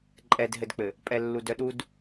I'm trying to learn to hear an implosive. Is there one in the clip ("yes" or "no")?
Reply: yes